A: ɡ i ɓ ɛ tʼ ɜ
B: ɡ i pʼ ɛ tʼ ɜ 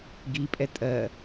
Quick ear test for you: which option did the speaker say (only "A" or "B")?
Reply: B